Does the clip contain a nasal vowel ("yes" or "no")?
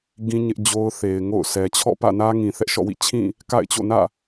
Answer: yes